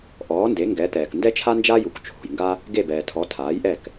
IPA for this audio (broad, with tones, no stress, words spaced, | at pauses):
ʔɔː˩˥nde˩˥ ŋɡɛ˩˥t̪ɛː˩k ndɛ˥t͡ʃʰa˥nd͡ʒa˥ju˩k t͡ʃʰo̤˩jŋɡa˥ | ɡe˥˩bɛː˩tʰɔ˩˥ tʰaː˩˥jʔɛ˥˩k